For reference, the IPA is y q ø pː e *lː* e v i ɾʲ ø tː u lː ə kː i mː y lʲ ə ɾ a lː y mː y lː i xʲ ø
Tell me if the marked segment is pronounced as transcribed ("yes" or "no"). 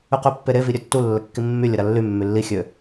no